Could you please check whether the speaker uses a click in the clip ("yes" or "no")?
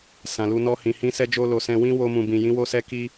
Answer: no